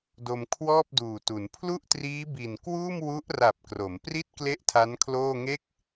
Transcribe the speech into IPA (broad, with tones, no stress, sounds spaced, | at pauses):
d o˧ m kʰ w ɔː˥˩ p̚ d uː˨˩ t u˩˦ n pʰ l u˥˩ ʔ t r iː˦˥ b i˨˩ n k w uː˥˩ m w u˦˥ ʔ r a˨˩ p̚ k r o˩˦ m p r i˦˥ t̚ k l e˥˩ ʔ tʰ a˦˥ n kʰ l oː˥˩ ŋ e˥˩ k̚